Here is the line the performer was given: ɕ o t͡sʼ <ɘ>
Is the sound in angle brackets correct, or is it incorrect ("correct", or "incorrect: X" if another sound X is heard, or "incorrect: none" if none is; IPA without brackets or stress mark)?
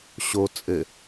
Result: correct